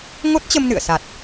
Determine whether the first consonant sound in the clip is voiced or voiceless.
voiced